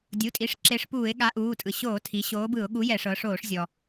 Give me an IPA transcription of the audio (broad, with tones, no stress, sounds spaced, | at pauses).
dʲ u˩˧˩ tʼ i˩˧˩ ʂ ǁ e˨˥ ʂ p uː˧˩˧ ɪ̯ ɠ a˨˥ ʔ uː˩˧˩ tʼ ɯ˩ ɕ oː˧˩˧ tʰ i˩˧ ɕ oː˨˥ b ɯ˧˩˧ ʊ̯ ɠ u˨˥ j ɛ˧˩˧ ʂ ɤ˩˧ ʂ oː˧˩˧ ʂ zʲ ɔ˩